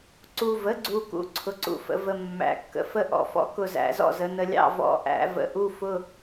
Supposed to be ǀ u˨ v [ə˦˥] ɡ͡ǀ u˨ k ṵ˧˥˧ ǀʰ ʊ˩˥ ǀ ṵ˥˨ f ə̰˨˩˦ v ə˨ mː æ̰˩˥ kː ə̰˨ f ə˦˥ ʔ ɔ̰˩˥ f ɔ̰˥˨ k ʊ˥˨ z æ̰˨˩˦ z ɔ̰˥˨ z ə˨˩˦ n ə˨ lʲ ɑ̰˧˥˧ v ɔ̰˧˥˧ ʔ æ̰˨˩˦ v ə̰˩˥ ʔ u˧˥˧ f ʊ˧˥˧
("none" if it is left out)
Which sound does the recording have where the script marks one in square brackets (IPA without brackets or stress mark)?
ə˩˥